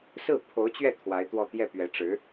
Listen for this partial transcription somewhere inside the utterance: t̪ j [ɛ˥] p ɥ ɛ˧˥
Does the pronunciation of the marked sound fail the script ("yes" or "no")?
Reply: yes